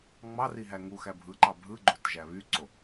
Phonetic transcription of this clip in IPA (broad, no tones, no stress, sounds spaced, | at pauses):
ŋ͡m ɑ r i ɦ æ ŋ u x æ bʱ ɯ ǃ ɑ bʱ ɯ ɡ͡ǃ o t ʒ æ β y ǀ o